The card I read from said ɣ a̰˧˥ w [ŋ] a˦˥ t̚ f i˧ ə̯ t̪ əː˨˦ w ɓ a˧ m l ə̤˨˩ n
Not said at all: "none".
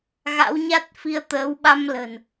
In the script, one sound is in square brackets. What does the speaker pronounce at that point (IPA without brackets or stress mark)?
ɲ